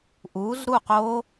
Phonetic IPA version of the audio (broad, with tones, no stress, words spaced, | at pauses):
ʔu˨˥zɾu˥˨qo˦˥